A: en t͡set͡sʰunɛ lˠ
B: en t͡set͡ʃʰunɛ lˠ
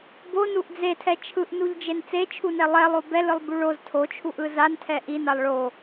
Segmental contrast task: B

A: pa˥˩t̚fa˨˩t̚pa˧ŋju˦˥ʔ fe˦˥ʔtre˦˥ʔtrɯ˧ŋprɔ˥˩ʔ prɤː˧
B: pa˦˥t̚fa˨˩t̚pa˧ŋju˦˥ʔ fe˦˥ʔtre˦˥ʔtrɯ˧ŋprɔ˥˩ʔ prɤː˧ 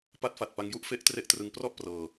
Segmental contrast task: B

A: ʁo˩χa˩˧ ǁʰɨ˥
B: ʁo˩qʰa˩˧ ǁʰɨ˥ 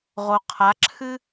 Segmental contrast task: B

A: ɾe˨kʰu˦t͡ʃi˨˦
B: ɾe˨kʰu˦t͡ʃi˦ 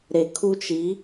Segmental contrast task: A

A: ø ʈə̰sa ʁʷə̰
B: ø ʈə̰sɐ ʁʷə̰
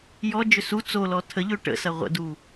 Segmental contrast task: B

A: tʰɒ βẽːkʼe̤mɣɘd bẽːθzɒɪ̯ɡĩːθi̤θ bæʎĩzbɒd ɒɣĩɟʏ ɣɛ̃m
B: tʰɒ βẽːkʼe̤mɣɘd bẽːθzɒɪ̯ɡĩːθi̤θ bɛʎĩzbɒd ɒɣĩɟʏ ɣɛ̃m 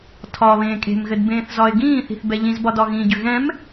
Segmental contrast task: B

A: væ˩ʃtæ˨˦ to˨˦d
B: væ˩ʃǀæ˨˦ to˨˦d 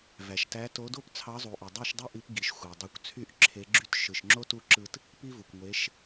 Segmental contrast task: A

